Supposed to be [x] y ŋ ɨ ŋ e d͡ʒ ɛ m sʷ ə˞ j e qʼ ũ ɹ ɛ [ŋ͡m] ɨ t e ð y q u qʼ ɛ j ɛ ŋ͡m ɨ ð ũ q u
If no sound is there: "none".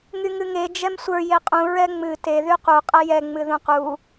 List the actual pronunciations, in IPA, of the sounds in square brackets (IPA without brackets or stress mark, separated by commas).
ŋ, ŋ͡m